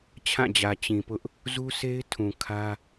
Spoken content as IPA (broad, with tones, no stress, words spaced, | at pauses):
t͡ɕʰã˦˨d͡ʑä˨ t͡ɕĩ˨pʊ˦ʔ | zu˦sʰe˦ɪ̯ tʰũ˨kʰä˦